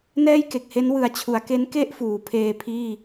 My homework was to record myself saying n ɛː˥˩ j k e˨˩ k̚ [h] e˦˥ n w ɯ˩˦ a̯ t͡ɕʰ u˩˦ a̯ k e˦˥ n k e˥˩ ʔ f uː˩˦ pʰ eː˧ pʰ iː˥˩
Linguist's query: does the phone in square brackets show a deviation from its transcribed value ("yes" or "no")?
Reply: no